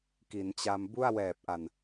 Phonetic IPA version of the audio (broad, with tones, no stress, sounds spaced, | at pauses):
k i˩˦ n t͡ɕ a˧ m b u˥˩ a̯ w ɛː˨˩ p̚ ʔ a˨˩ n